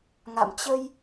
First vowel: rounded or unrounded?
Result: unrounded